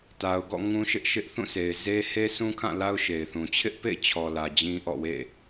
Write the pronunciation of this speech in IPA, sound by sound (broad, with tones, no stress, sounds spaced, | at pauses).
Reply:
t a˨ ʊ̯ ɡ ɔ̰˦˨ ŋ ũ˦ ʃ ɪ˦ ʔ ʃ ɪ˦ ʔ θ ũ˦˨ sʰ e˨ ɪ̯ z e˦ h e˦ sʰ ũ˦ kʰ ã˦˨ l a˦ ʊ̯ ʃ e˨ ɪ̯ θ ũ˨ t͡ɕʰ ɪ˦ ʔ p ḛ˦˨ ɪ̯ t͡ɕʰ ɔ˨ l ä˨ d͡ʑ ĩ˦ ʔ ɔ̰˦˨ w ḛ˦˨